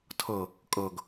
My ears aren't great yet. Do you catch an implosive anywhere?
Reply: no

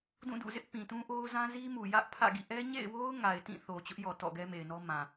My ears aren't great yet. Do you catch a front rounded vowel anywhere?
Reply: no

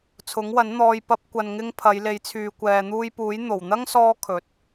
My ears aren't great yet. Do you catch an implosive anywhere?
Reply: no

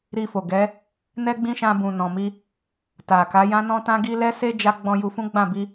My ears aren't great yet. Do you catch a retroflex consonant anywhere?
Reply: no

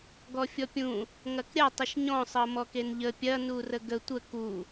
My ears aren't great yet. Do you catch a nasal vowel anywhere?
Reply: yes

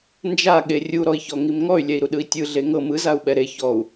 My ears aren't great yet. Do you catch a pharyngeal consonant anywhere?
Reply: no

